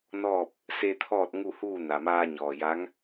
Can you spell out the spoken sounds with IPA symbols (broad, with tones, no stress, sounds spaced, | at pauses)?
n ɔː˥˨ p̚ | s e˧ t̪ʰ ɔː˥˨ t̚ ŋ u˥˨ h uː˥˨ n a˩ m aː˧ ɲ ɔː˩ j a˧˥ ŋ